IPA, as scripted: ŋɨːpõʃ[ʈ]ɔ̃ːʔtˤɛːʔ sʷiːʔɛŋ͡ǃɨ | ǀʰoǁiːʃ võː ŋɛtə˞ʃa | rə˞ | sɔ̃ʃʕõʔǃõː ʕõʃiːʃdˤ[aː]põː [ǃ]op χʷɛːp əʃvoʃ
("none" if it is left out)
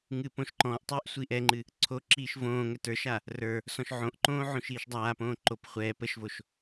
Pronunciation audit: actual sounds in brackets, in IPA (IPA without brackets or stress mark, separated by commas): ǃ, aː, ǃ